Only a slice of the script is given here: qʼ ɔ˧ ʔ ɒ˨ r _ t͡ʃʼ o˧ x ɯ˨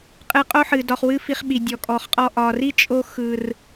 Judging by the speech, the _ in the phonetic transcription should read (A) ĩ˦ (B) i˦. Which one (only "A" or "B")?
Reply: B